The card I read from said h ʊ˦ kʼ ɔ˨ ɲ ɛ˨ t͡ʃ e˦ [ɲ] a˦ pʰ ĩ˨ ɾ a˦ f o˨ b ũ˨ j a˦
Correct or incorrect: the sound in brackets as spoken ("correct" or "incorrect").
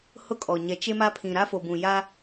incorrect